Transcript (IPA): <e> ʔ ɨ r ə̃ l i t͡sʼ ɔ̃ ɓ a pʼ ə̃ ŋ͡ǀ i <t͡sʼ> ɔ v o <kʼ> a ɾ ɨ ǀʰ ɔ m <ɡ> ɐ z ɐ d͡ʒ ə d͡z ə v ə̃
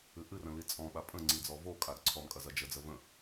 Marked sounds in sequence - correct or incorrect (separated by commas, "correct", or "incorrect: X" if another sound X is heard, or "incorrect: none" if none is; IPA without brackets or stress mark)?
incorrect: ɨ, incorrect: d͡z, correct, incorrect: kʼ